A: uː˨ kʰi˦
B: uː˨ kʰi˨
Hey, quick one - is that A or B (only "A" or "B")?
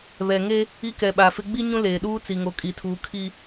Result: A